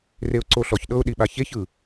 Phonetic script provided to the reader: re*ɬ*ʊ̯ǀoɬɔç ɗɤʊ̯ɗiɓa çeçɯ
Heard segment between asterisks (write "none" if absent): none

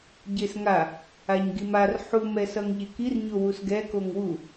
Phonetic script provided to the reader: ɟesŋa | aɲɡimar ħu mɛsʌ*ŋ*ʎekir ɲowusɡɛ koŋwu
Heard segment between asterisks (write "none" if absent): ŋ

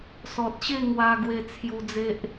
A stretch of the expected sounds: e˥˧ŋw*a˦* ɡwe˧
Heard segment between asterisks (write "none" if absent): a˧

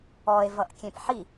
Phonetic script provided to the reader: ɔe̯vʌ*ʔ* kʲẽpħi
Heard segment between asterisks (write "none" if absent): ʔ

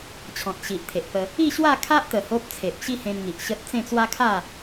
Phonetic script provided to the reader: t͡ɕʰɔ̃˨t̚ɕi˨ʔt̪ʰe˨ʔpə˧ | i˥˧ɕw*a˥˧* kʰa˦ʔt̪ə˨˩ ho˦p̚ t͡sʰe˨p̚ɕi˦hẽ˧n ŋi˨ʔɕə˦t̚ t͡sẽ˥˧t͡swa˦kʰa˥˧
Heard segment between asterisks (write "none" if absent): a˥˧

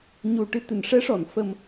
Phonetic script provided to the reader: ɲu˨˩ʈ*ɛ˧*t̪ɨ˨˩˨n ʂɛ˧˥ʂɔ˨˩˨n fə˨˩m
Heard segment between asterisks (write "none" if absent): ɨ˧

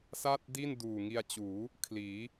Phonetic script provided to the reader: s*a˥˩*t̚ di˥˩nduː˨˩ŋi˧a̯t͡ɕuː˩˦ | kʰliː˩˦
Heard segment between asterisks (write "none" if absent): a˥˩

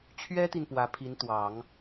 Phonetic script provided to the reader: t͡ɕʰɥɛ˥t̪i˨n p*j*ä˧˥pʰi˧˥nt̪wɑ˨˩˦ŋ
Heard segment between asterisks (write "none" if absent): w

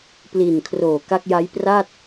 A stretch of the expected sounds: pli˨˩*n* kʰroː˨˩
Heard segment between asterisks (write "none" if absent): n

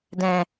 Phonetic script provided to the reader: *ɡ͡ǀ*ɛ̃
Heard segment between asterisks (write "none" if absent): d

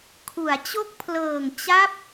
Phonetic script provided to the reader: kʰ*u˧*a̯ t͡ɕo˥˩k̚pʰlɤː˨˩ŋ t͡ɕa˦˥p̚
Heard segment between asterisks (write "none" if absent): u˩˦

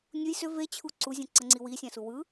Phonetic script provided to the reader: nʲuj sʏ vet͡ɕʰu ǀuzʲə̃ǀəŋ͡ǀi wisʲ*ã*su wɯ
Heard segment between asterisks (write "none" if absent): ã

